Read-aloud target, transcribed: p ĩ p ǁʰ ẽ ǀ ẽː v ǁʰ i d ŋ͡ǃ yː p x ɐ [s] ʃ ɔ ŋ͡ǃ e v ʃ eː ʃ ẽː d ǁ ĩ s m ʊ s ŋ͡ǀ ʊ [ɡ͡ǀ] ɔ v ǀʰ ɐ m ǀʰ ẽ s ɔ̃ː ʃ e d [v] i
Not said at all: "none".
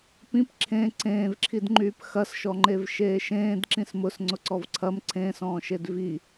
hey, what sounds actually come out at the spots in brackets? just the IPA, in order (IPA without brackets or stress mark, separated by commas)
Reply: s, ǀ, v